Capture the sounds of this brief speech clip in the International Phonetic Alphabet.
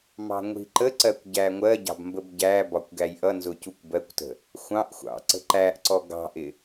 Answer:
mɑ̤ŋʷi̤ǃəǀɜkʷ ɟæŋʷɜɟɑ̤b mbəbɟæbɒkʷ ɡæjʔʌnzʊ cukʷbɜkʷtə̤ | xʷɑ̃ʔxʷɑ̰ ǀə̤ǃæʔǀɔ ɡɑ̤ʔɪ

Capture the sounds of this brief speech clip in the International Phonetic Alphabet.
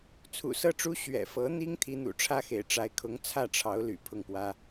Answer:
t͡sʰṵ˨˩sɤ˥˩ʈ͡ʂu˥ ɕɥɛ̰˨˩fɤ˧˥n̪i˥ŋ t̪ʰi˧˥n̪ṵ˨˩ʈ͡ʂʰä˥xḛ˨˩ɪ̯ ʈ͡ʂa˧˥ɪ̯kʰʊ˧˥ŋ t͡sʰä˥˩ʈ͡ʂʰɑ˧˥ʊ̯ly̰˨˩ pʰʊ˥˩ŋpwä˥

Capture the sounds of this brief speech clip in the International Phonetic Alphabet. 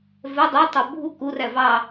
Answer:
vɛ dˤə˞tˤə˞ bʱu kuræ vɑ

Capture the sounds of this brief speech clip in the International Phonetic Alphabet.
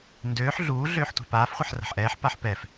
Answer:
ndøːħ ɮuː ɮøːħtʷa̤paːf χʷɛħra̤ħʔɛːħ paħpɛf

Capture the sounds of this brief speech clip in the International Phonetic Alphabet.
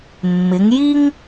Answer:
mːɪ˩˧ŋji˥ŋ

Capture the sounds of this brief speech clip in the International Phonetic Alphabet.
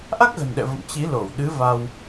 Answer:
ʔa˦˥k̚ɣə̤˨˩nɗɛ̰˧˨ və̰˧˨m t͡ɕi˨˦lo˧˩wɗɨ˨˦ va˧w

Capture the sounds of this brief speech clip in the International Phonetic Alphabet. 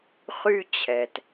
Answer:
χy˧ t͡ɕʰɛ˩t

